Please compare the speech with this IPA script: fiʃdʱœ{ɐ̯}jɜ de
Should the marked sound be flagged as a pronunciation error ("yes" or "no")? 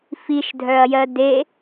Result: no